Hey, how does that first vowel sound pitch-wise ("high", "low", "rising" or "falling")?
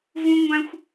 high